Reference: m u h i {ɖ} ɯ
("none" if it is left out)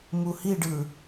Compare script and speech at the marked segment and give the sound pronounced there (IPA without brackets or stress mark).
ɖ